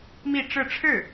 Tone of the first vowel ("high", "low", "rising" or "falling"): falling